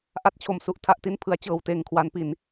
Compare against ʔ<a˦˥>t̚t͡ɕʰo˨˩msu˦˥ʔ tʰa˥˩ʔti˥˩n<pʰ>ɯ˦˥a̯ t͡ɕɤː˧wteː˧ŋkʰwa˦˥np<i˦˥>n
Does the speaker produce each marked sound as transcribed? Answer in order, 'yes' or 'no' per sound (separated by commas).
yes, yes, no